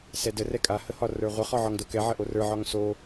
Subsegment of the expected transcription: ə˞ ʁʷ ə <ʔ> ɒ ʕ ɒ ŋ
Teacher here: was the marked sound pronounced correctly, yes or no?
no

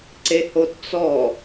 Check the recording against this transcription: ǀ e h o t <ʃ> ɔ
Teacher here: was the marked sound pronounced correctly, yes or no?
no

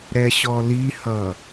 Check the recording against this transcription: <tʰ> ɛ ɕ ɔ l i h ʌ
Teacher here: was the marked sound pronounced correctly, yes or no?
no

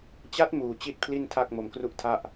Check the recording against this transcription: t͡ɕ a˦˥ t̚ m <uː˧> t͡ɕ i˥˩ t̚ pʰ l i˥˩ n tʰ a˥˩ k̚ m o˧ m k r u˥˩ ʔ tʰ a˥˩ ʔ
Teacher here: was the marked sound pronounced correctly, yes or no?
yes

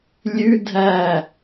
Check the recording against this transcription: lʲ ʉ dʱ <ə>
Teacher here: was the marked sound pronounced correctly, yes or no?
no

